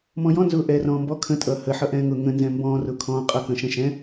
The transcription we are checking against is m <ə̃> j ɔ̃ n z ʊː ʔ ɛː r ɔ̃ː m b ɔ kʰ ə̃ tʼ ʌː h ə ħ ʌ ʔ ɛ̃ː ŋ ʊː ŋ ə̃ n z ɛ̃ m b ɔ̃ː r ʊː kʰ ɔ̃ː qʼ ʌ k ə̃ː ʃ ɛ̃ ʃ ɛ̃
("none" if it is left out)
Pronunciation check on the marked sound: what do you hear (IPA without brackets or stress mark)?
ɔ̃